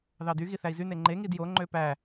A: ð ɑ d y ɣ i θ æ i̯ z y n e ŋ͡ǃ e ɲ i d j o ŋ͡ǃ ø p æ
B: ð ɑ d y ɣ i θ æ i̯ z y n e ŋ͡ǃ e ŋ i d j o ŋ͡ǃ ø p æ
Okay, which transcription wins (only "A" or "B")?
B